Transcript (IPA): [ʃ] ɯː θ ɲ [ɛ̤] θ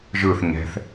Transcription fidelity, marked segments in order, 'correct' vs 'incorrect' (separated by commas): incorrect, correct